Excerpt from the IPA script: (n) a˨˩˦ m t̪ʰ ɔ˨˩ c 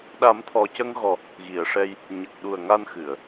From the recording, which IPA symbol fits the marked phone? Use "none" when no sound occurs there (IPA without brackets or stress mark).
ɗ